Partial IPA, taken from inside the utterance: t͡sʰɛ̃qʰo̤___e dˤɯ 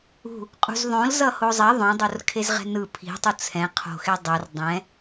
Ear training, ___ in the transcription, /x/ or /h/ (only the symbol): x